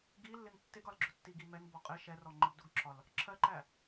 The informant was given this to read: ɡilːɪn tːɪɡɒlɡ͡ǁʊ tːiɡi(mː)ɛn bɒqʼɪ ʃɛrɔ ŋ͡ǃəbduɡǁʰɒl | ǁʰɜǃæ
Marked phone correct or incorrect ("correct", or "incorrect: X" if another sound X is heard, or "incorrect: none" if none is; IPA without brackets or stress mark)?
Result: incorrect: m